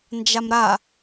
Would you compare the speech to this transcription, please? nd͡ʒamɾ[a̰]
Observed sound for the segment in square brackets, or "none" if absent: a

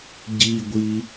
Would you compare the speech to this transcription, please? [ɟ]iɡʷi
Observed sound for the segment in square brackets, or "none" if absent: ɟ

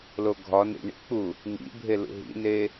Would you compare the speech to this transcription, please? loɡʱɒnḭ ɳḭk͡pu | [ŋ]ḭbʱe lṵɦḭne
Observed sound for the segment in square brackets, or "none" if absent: ŋ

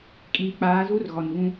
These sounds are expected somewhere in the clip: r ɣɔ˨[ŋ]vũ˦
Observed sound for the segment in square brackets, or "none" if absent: n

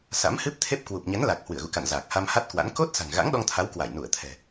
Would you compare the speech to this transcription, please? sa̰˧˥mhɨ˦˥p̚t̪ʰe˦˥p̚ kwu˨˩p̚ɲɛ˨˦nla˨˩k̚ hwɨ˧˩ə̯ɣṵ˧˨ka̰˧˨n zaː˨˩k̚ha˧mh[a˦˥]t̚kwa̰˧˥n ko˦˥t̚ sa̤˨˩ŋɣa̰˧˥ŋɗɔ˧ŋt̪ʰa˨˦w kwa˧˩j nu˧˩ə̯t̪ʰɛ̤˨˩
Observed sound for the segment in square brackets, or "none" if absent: a˦˥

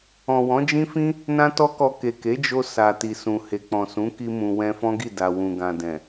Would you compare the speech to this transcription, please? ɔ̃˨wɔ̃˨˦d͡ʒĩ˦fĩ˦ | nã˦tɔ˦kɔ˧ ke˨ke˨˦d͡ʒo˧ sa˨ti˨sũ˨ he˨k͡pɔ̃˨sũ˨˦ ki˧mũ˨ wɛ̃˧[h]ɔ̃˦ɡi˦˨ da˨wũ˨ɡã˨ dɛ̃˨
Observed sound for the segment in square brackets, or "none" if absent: f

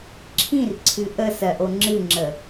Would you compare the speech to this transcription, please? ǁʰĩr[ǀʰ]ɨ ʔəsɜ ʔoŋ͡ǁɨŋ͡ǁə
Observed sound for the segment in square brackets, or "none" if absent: ǀʰ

